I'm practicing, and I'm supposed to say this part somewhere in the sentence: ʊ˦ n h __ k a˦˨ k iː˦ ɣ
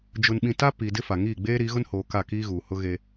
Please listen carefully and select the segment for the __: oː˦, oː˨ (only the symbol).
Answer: oː˨